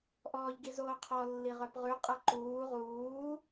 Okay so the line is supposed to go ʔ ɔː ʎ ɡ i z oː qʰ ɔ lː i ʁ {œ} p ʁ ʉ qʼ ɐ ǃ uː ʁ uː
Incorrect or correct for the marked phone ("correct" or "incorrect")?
correct